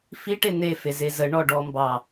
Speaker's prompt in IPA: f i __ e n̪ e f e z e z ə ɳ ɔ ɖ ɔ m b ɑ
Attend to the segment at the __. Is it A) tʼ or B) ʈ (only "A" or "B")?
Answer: B